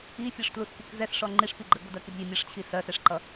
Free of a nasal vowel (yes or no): yes